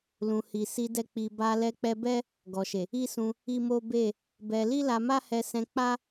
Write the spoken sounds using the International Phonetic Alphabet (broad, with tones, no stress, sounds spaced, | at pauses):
l ũ˨ h i˨ s i˧ d ɛ˧ k͡p i˨ b a˧ l ɛ˧ k͡p ɛ˧ b ɛ˦ | ɡ ɔ˨ ʃ e˨ | i˦ s ũ˧ | i˦ m o˦ b e˦˨ | b ɛ˧ l i˦ l a˧ m a˦ h ɛ˧ s ɛ̃˧ k͡p a˦